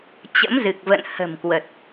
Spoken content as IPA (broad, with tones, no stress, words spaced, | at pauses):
t͡ɕə̰˧˥mzɨ˨˩k̚və̰˧˨n hə̤˨˩mkwə˨˩t̚